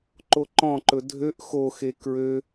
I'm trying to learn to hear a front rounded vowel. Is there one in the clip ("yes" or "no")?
yes